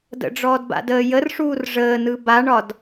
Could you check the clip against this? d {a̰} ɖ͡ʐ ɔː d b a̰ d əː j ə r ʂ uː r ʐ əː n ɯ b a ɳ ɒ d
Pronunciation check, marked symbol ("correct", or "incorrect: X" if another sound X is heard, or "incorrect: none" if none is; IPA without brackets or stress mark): incorrect: ə̰